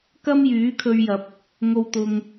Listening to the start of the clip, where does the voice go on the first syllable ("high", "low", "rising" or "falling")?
high